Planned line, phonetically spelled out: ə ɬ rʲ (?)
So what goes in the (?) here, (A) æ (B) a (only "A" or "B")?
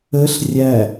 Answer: A